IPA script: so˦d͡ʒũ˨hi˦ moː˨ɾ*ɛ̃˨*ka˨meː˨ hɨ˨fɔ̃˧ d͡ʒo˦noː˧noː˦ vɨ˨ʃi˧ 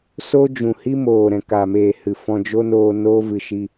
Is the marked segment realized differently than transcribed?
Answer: no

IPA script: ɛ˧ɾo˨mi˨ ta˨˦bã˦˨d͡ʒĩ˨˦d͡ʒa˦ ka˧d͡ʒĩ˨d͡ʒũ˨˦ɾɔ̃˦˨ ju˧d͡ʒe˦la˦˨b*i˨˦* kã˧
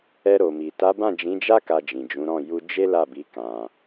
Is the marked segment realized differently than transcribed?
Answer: no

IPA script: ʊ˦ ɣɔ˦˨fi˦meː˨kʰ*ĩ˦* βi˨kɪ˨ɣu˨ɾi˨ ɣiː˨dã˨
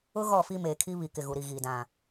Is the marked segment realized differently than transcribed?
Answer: yes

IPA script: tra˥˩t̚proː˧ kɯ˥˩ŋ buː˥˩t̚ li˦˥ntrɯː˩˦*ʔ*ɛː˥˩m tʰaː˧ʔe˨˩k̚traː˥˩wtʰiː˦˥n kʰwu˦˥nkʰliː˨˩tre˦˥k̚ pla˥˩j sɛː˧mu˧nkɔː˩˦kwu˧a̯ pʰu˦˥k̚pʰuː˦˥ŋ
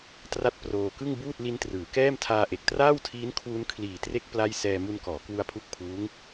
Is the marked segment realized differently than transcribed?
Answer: yes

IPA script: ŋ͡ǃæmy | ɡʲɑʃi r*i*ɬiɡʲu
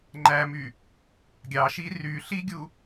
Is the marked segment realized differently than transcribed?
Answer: yes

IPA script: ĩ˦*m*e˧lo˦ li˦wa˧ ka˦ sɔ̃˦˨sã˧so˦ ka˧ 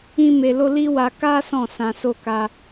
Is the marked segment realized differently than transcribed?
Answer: no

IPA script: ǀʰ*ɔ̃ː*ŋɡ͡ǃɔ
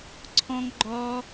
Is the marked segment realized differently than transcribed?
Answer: yes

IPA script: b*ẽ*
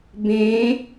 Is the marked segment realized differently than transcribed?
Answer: no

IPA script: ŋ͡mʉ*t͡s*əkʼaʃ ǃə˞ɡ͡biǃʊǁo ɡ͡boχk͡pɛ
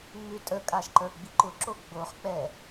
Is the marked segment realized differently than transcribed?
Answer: yes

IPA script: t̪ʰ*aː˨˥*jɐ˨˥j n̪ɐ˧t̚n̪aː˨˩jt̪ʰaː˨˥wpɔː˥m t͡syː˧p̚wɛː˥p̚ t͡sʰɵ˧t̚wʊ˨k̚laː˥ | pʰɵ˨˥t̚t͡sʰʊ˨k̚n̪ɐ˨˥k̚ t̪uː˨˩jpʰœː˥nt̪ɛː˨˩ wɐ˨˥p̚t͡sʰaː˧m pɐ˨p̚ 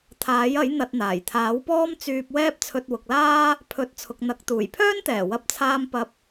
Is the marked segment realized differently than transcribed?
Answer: no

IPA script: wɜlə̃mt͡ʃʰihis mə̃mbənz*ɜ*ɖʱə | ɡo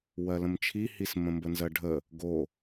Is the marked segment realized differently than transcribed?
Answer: no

